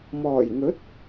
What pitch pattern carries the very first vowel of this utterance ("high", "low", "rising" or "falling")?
low